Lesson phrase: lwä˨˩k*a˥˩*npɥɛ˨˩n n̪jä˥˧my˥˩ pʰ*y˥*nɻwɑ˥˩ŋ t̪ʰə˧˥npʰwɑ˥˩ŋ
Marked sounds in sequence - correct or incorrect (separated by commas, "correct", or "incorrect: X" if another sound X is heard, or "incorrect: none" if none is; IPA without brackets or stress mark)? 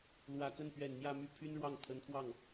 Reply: incorrect: ə˥˩, correct